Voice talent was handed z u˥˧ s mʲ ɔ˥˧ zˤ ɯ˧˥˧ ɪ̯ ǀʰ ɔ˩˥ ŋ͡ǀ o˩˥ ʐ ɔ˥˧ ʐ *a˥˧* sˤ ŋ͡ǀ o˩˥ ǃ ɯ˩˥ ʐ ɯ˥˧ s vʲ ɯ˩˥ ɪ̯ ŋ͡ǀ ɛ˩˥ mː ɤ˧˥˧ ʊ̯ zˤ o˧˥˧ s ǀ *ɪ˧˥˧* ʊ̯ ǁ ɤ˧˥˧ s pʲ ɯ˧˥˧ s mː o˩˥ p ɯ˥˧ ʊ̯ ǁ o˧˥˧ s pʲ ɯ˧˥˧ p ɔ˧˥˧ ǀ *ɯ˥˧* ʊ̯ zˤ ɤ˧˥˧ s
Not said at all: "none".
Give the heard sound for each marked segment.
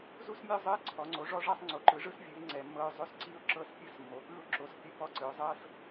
a˥˧, i˧˥˧, ɯ˩˥

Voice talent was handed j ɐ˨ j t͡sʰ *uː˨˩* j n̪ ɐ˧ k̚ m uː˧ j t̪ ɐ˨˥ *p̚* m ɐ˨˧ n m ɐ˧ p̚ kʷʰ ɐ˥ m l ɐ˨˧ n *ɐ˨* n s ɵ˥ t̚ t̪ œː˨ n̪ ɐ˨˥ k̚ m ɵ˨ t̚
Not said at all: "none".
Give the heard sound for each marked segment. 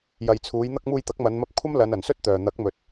uː˨˧, k̚, ɐ˨

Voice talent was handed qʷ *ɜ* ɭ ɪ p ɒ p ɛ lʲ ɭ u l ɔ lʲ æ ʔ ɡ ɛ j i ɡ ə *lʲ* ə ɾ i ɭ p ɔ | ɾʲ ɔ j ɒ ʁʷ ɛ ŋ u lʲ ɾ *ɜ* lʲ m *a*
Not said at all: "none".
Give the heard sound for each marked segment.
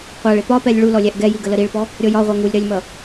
æ, l, ɜ, ʌ

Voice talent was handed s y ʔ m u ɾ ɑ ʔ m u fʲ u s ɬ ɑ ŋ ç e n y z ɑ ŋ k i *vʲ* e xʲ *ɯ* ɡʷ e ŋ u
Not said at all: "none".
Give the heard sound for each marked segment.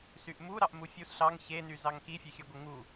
fʲ, ɯ

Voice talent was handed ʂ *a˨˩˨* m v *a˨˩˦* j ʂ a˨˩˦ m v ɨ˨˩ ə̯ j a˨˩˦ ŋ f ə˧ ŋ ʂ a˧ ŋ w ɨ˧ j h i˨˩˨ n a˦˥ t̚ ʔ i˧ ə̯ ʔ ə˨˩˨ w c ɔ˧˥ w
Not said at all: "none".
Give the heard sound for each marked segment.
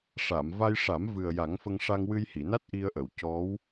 a˨˩˨, a˧

